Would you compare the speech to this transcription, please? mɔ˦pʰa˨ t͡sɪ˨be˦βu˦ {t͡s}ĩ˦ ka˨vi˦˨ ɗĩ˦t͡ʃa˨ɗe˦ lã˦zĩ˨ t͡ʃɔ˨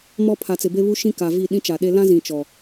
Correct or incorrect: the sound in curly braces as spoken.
incorrect: ʃ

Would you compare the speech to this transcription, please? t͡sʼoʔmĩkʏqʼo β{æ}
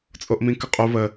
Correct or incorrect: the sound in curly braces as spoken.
incorrect: ə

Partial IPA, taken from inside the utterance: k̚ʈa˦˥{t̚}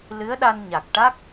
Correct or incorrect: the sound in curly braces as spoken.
incorrect: k̚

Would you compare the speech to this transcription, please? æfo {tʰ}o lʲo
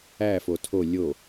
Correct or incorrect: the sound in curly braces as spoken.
correct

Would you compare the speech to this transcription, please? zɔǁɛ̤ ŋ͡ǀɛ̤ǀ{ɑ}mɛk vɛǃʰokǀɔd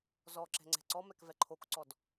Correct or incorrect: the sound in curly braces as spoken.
incorrect: ɔ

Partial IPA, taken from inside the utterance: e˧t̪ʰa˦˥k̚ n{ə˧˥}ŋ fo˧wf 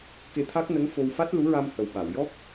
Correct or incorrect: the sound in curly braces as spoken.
correct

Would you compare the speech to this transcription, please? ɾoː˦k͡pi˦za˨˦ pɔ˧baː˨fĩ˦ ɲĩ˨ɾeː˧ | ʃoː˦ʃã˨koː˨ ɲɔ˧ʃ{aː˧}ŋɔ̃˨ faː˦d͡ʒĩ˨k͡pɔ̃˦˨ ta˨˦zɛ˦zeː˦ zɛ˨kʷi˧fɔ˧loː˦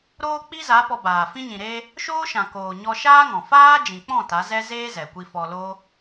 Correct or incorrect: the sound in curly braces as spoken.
incorrect: aː˦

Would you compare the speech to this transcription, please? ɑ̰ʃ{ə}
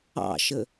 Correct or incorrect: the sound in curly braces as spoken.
correct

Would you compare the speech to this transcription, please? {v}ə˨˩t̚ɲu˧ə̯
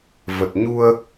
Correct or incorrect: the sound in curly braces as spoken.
correct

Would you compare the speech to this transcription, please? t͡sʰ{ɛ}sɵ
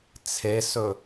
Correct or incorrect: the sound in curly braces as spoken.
incorrect: e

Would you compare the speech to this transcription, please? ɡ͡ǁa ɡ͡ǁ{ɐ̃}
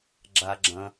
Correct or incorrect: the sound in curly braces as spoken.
correct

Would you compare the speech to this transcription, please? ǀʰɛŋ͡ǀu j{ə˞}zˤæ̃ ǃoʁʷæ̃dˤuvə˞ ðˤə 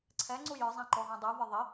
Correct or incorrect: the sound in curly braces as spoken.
correct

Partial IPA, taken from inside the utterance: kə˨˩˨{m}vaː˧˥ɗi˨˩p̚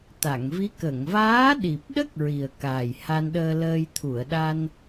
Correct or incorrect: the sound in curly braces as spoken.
incorrect: ŋ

